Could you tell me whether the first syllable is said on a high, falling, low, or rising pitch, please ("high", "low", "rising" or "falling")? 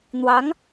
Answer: rising